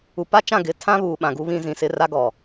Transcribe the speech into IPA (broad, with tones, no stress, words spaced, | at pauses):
u˨pa˦t͡ʃã˦˨ ɡɪ˨˦ tʰã˦ βuː˨ɓã˨ɡu˦βĩ˦ zĩ˨sɪ˦ ra˦ɡɔ˨